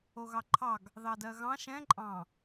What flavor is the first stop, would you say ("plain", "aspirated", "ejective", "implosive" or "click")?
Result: click